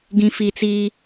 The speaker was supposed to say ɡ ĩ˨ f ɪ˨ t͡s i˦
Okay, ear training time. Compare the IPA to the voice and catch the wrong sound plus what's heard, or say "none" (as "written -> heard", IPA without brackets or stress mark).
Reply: ɪ˨ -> i˨